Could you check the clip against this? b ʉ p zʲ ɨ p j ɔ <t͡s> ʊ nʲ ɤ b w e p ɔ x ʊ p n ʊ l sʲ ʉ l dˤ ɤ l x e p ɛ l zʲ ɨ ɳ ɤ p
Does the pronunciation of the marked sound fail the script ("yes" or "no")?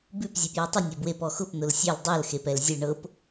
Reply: yes